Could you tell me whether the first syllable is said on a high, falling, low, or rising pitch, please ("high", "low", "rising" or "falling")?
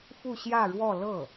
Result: falling